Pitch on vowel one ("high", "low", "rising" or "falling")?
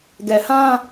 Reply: low